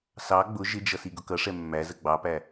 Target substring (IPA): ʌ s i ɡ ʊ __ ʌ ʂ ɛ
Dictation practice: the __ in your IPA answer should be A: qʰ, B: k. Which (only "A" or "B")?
B